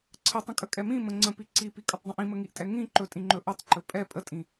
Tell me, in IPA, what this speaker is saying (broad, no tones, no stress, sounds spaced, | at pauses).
ǀʰ ə tˤ ə̃ kʼ ə kʼ ɛ m ĩ m ə̃ ŋ͡ǀ ə̃ p i ǀ i p i kʼ ə tˤ dˤ ə̃ ʔ ĩ m ə ŋ i ʔ tʼ ɛ ŋ ĩ ǃ ɵ tʼ ĩ ŋ͡ǃ ɵ ʔ ə tˤ ǃ ɵ pʼ ɛ pʼ ə tʼ ĩ